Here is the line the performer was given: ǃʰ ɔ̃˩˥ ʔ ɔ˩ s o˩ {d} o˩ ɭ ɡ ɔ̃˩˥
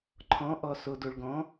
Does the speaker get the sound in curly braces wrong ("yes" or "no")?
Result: no